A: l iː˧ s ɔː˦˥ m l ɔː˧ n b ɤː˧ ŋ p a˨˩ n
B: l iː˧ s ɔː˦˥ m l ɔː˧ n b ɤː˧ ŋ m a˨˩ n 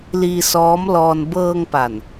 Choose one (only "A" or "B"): A